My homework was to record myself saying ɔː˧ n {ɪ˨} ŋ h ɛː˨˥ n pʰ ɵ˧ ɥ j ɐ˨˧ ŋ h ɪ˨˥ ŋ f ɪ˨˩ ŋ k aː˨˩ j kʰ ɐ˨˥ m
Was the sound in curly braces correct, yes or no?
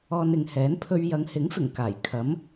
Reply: yes